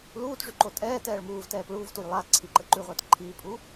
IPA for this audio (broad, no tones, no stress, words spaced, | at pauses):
luːtʐyǃo tʼɛːtɛːɭ muːvtɛːp ɭuːvtujlˠaː ǀʰiǃə ǃʉʁʷɛːt ǃʰiːpʼu